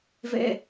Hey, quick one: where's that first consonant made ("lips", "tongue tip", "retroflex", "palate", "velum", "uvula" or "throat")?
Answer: lips